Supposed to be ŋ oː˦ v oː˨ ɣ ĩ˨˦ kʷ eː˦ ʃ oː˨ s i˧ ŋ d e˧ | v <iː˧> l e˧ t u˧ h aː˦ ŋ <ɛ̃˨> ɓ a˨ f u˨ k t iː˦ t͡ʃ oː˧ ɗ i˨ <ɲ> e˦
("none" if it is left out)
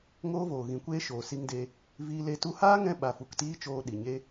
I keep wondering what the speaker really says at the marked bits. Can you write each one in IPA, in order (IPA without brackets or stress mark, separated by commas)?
iː˧, ɛ̃˧, ɲ